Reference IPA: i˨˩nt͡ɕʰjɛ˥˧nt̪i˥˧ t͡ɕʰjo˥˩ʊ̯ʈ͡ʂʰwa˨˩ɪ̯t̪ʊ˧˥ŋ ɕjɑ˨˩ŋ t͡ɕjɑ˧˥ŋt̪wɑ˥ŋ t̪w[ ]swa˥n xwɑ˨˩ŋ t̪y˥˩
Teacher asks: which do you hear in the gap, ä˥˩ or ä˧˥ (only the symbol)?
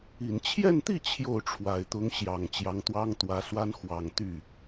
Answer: ä˧˥